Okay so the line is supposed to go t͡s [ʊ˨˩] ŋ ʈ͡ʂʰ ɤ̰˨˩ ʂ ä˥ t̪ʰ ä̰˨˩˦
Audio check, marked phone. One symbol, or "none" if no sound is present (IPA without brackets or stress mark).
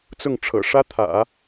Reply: ʊ˥˩